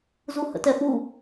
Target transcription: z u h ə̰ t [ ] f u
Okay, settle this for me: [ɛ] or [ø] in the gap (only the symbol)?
ɛ